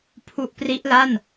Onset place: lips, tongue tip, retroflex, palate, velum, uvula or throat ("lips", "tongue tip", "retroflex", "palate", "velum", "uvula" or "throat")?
lips